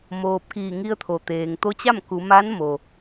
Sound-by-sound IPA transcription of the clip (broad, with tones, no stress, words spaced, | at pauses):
moː˧p̚ kiː˧˩ŋi˧ə̯t̪ʰo˩ t̪eː˩ŋt̪o˧˥t͡ɕa˥˨m ku˩˧ma˧˥nmo˩